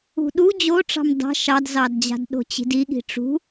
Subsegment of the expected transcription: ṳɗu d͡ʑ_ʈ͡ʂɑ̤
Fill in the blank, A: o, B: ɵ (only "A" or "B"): A